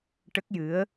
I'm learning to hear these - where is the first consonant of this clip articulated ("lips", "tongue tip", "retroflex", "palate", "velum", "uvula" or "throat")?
retroflex